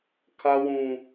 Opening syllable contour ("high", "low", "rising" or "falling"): high